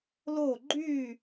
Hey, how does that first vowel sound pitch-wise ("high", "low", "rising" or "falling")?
falling